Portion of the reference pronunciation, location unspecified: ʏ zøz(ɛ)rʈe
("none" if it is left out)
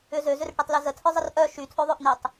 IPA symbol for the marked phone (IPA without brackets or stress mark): ʏ